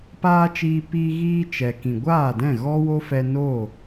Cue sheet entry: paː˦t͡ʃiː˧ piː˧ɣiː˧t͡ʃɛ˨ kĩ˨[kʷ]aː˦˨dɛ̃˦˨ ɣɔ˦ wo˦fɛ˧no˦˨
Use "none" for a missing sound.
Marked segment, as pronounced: ɡʷ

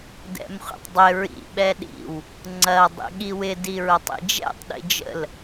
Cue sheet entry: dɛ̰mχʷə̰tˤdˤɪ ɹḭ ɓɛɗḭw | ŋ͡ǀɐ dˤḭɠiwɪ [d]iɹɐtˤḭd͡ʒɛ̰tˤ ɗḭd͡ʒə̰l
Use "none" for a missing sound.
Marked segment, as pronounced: d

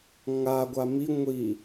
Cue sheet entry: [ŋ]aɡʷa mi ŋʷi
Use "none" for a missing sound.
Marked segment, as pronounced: ŋ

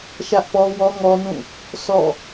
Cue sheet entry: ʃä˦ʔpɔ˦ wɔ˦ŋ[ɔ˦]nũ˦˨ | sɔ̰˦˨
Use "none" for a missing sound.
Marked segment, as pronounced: ɔ˦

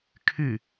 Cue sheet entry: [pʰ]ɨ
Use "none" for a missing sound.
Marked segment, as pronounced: kʰ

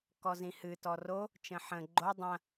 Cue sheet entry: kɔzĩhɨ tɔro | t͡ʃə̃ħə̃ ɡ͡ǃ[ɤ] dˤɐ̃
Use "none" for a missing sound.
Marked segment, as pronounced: o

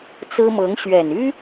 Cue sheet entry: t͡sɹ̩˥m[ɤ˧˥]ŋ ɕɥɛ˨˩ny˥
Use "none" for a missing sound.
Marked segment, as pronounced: ɤ˧˥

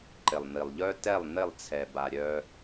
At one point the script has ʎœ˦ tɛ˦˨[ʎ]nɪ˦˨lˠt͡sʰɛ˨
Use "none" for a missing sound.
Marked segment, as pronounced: lˠ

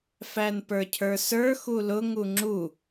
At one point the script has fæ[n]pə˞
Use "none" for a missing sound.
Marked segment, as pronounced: n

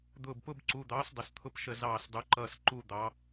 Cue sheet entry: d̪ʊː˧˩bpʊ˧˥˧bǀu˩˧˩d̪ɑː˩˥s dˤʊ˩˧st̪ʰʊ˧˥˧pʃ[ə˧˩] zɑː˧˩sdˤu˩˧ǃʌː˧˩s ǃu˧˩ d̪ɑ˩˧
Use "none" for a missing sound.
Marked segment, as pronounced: ə˧˩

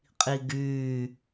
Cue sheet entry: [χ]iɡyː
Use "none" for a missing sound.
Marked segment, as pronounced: qʼ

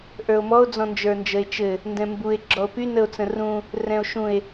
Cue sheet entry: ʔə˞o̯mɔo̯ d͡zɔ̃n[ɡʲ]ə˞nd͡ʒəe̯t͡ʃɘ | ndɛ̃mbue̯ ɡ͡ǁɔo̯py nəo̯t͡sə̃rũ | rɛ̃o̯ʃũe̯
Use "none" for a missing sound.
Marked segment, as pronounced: d͡ʒ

